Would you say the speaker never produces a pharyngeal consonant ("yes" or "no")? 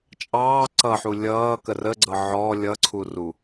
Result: no